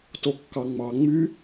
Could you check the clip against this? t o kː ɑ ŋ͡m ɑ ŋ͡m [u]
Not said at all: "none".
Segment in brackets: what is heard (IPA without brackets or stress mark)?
y